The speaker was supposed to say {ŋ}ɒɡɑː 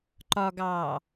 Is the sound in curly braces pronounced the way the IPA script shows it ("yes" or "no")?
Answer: no